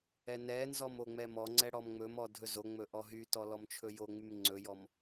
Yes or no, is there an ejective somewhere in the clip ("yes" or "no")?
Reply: no